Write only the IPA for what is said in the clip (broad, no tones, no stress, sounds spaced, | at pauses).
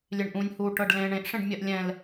lʲ e ɳ ʔ ũ nʲ h u ʈ ɤ ɖ l ẽ ɳ ẽ ʔ ʂ ẽ ɖ mʲ ɜ ʔ lʲ ɛ̃ l